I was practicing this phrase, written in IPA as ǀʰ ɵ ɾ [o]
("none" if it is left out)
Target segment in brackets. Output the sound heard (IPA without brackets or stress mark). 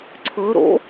o̰